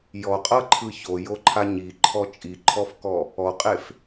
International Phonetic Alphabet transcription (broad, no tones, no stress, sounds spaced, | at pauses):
j ɔ qʼ ɤ ǃʰ ɯ ç o j o ǃʰ a ɲ i ǃʰ ɔ t͡ʃʼ i ǃʰ ɔ f k ɔ | ɔ qʼ e f